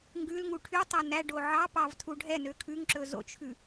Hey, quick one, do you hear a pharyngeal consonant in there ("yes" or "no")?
yes